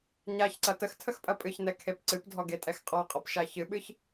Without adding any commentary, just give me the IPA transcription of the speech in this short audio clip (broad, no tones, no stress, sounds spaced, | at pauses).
ɲ a ç ǀ ɐ t ə x tʰ ə x pʼ ɐ pʼ ɨ ç n ɛ kʰ e p ǀ ɨ p dʱ ɔ ɡ e tʼ ɛ x qʼ ɔ qʼ ɔ p ʃ a ç ɨ ɓ ɨ ç